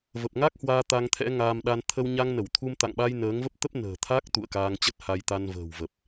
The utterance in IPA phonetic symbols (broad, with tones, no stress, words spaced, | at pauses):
və˨˩p̚ŋa˦˥k̚hwaː˧ t̪a˧ŋt̪ʰɛ̰˧˥ŋaː˧mɗa˧n t̪ʰə˧wɲa˧ŋnə˧˩w t̪ʰu˧mt̪a̰˧˨ŋɓa˧j nəː˨˦ŋvə˦˥p̚ t̪ə˦˥p̚ nə̤ː˨˩t̪ʰa˦˥k̚ t̪ṵ˧˨ə̯ kaː˧ŋt͡ɕə˦˥t̚ ha˧jt̪a˧nvə̤ː˨˩wvə˨˩p̚